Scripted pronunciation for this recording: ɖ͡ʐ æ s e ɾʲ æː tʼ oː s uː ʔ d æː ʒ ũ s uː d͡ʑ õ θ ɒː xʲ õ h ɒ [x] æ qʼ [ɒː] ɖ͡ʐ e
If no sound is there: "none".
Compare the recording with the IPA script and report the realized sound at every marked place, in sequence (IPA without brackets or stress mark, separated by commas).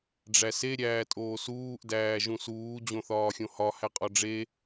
h, ɒ